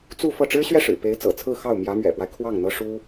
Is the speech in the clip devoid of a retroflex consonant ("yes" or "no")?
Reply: no